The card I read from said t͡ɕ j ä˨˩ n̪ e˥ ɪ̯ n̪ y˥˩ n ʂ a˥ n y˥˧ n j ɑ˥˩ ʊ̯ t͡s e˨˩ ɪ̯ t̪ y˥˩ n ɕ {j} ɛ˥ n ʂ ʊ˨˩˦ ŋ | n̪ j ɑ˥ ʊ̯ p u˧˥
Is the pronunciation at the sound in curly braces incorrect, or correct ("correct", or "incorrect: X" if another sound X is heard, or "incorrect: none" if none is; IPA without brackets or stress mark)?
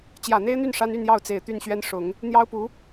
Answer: incorrect: ɥ